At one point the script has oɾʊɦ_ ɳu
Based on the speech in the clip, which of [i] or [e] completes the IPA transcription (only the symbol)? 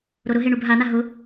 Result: e